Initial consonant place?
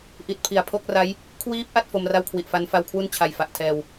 glottal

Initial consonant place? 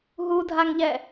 glottal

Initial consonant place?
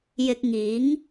palatal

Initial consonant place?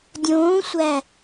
alveolar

